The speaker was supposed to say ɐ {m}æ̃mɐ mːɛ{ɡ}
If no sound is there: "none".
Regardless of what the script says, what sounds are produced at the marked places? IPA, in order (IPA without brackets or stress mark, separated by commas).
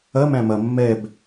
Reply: m, b